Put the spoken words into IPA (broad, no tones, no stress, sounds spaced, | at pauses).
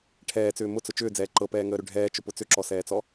ʈʰ ɛː t͡s ʏː m ʊ t͡s ʊ t͡ʃ ʏː d͡z ɛː ǃ ɤ p ɛː ŋ əː ɾ ʏ ɖʱ ɛː t͡ʃ ʊ p ʊ t͡s ʏ ǁ ɔ s ɛː t͡s ɔ